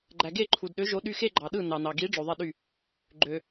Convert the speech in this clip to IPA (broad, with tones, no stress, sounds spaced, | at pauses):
ɡ͡ǃ æ˨ ɡ e˥˩ ǃʰ u˨ d ɗ ø˨˥ ʒ o˨˥ ɗ y˧˥˧ x e˥˧ ɡ͡ǃ ɑ˨ ɗ ɯ˥˩ n ɑ˨ n ɑ˨ ɡ i˨˥ ɖ͡ʐ o˨ ðˤ i˥˩ ɗ y˥˩ | ɡ͡ǃ ø˨